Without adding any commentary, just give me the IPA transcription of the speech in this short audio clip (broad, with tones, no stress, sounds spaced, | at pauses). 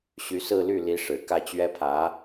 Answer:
ɕ y˧˥ s ɹ̩˥˧ l y˥˩ l i˧˥ ʂ ɻ̩˨˩ k ä˥˩ t͡ɕ ɥ ɛ˥ pʰ ä˧˥